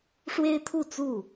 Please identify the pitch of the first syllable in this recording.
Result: high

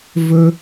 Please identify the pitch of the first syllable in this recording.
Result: low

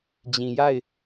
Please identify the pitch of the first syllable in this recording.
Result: low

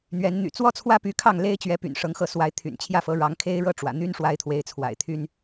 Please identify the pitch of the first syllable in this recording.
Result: rising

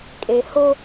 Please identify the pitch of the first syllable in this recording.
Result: low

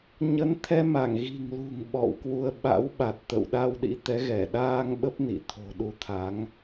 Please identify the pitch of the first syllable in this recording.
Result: rising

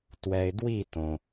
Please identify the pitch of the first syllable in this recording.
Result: low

